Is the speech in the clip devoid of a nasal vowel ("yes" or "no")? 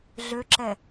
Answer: yes